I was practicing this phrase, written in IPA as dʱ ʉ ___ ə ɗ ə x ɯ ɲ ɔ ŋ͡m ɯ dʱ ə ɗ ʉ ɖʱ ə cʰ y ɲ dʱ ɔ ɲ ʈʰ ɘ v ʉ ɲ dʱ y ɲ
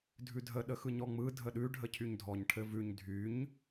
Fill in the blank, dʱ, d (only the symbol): dʱ